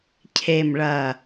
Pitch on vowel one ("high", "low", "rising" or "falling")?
low